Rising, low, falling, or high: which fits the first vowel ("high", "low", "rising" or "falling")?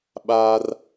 high